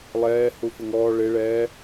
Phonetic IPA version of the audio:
lˠɛː hufɪŋɔː ɭɪ ɭɛː

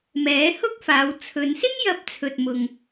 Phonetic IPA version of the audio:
mɛː˨˥hʊ˥k̚faː˨˧w t͡sʰɵ˨˧nsɪ˥ŋ jɐ˥p̚t͡sʰɵ˧t̚ mʊ˧ŋ

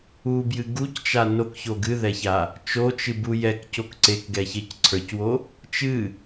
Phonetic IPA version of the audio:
ubjɨ ɡuct͡ʃa nokço ɡɨðɛça | t͡ʃot͡ʃɨbu jɛkcok ǀekɡɛçec ǀʰə˞cwo | t͡ʃɨ

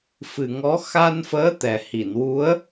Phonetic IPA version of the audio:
fɨ˨˩ŋɔ˧˥ xa˧nfəː˧˥ t̪ɛ˨˩ hi˨˩˨nwu˧˥ə̯

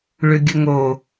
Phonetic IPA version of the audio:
ɭʏɡʲəŋo

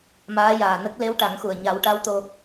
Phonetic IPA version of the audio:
maː˧˥jaː˨˩nə˦˥k̚ le˧˥wʈa˨˩˦ŋxu˨˩ə̯ ɲa˨˩˦wʈa˧˥wt̪o˧

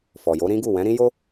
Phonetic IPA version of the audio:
fɔ˨jo˨˦ɾĩ˦ɡu˦˨ wɛ̃˨˦ɾĩ˦jo˦

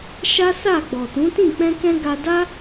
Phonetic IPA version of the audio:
ʃa˦ sa˦˨ ɡ͡bɔ˨tũ˨˦tĩ˦˨ k͡pɛ̃˧kɛ̃˧ ɡa˧da˦

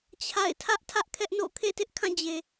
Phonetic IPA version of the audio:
t͡ɕʰa̰˦˨ɪ̯ tʰä˦ʔtʰä˦ʔkʰɛ˦ʔno̰˦˨ kʰḛ˦˨tɪ˦ʔkʰã˦˨d͡ʑe˨

